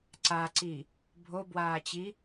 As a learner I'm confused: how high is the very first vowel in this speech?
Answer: low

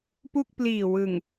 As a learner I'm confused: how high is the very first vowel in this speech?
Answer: high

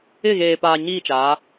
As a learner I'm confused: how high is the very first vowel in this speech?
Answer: high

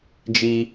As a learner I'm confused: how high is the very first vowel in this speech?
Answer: high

